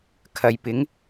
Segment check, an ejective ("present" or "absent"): absent